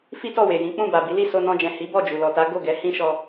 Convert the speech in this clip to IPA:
fi˦tɔ˦˨we˨jĩ˨˦ k͡pũ˦˨ba˨ bi˨˦li˦˨ so˧nɔ̃˧d͡ʒɛ̃˨ hi˨˦bɔ˦˨d͡ʒu˨ lɔ˨ta˨˦ ɡo˦˨ɡɛ˨˦ hĩ˦ʃɔ˧

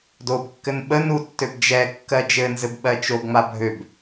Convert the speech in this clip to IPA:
dobkːɘn ɓə nutːøb d͡ʒɛkːɜ d͡ʒɘnzɘb ɓɜt͡ʃoɡŋ͡ma bʱøb

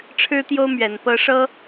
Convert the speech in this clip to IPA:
ʈ͡ʂʰɻ̩˥t̪jo˥ʊ̯ mɥɛ˨˩npɤ˥ ʂɤ˥

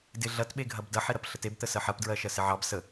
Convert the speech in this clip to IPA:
dɪ ɮɐtɓeɡʱɐb dɐħeɾɐp ɬətebt̪ə sɜħɐpdɹɜ ʃɜsɪʕɑb sə

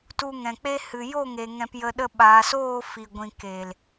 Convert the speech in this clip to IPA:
tu˧ŋɛ̃˨k͡pe˦ hɨ˨jo˦˨ŋe˨ ŋɛ̃˧pjə˧ ɗə˧ɓaː˨soː˦˨ fi˨ɡʷĩ˨ ke˨l

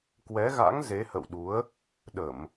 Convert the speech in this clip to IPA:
kwɛ˨˦ɣa̰˧˥ŋ ze˨˦hə̰˧˨wɗu˨˦ə̯ | ɗə˧˩˨m

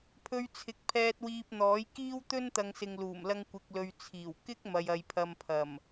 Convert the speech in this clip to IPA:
pʰɵ˧ɥ t͡sʰɪ˨k̚pʰɛː˧t̚wiː˧p̚n̪ɔː˨˥j kiː˥wt̪ɵ˥nt̪ɐ˨ŋ sɪ˨ŋluː˨˩m lɐ˥ŋkʷɪ˧k̚lɵ˧ɥ t͡sʰiː˨˩w kɪ˥k̚ mɐ˧jɐ˧j pʰɐ˧m pʰɐ˨˩m

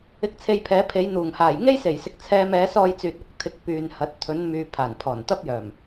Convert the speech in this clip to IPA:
ɪ˧k̚t͡sʰe˧jpʰɛː˨˥pʰe˨˥j n̪uː˨˩ŋhaː˨˩j ŋe˥jse˨˩jsɪ˨k̚ t͡sʰɛː˧mɛː˨˥sɔː˧jt͡syː˨t̚ ʊ˧k̚t̪ʰɪ˨˥k̚ pyː˨nhɐ˨˥t̚ t̪ʰɵ˨˥n myː˨ pʰaː˨˩npʰɔː˨˩nt̪ɐ˥p̚jœː˨˩m

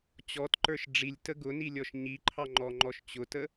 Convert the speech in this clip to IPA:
t͡ɕɔtǃə˞ʃ ɖ͡ʐilʲtə ɡʊnilʲɔʃ ɲiǃʰɑŋ͡ǃɔŋ͡ǃɔʃ t͡ɕʊtə

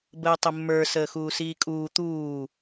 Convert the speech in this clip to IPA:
bəːtˤəmːə˞ səːxuːsiːkʼuː t̪uː

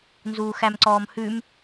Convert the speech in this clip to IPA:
nzuːxæmǀɔːmhʉm

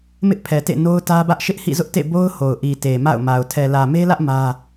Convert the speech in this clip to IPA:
mɪ˦ʔpʰɛ˨tḛ˦˨ no˦ʊ̯tä˦bä˦ʔ ʃɪ˦ʔhḭ˦˨zʊ˦ʔtḛ˦˨ bo˦ʊ̯ho˨ʊ̯ ʔi˨te˨ ma̰˦˨ʊ̯ma˨ʊ̯ tʰɛ˨lä˨me˦lä˦ʔ mä˦

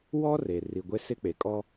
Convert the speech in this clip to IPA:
wɔ˦re˨ ri˨ɡʷe˦sɪ˦k͡pe˨ kʼɔ˦

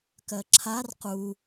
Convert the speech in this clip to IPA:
kɜǁʰar qu

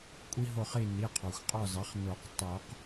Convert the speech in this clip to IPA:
kʷʼi˦ɦo˦˨χi˦˨ ni˩˧˩qʰɔ˩xʷ qʼɔ˦˨zɑ˩˥χ no˨˩˦q tˤo˨˩˦q

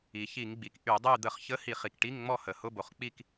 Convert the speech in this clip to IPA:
i˩çi˧˩˧ŋɡ͡bi˩k ʔy˧˩˧dˤy˥˨ d̪ə˧˩˧χçə˧˥˧hi˧˩˧χ i˩kʈi˧˥˧ŋŋ͡mɔ˥˨ hə˩ hʊ˧˥˧bo˩χk͡pi˥˨k

